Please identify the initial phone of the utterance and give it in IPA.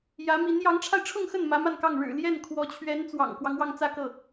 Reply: j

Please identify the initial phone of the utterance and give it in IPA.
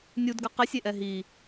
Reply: nʲ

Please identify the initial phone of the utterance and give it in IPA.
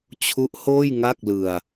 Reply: t͡ɕʰ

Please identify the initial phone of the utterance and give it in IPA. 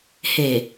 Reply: h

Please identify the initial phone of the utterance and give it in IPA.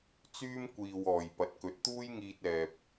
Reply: t͡s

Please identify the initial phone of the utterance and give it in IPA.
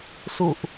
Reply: s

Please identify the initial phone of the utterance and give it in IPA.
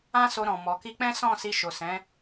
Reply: ã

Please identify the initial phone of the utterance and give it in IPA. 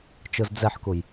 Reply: t͡ʃ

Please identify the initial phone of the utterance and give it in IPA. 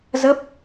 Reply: z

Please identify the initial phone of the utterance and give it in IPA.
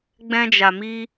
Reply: ɡ͡b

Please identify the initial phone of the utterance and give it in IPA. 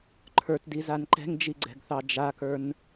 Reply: ǃʰ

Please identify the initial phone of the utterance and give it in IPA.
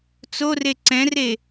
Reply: t͡s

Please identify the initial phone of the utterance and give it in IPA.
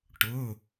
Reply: ʈ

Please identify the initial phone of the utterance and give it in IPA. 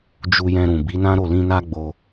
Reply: d͡ʒ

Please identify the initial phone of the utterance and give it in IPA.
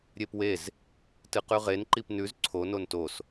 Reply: ɾʲ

